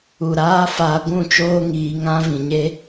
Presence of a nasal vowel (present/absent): present